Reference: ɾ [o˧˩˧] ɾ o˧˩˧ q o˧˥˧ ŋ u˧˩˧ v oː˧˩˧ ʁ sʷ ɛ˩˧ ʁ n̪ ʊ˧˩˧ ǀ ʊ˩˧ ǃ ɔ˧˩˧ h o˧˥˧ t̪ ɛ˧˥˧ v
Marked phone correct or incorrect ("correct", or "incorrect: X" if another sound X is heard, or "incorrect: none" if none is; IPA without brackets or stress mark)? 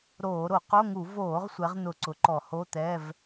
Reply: incorrect: oː˧˩˧